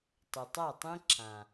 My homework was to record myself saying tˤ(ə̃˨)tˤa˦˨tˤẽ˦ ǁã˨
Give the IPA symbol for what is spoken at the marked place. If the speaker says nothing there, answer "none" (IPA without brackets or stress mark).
ə˨